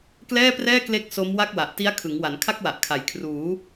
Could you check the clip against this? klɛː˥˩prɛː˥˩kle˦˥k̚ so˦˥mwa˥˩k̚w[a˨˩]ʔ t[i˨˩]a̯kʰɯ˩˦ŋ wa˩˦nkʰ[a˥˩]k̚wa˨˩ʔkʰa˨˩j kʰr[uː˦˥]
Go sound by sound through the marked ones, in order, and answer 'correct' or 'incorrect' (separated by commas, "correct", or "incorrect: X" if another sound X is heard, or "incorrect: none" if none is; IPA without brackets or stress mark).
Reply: correct, incorrect: i˦˥, correct, incorrect: uː˩˦